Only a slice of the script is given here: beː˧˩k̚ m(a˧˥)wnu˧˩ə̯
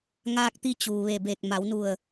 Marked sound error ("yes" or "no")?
yes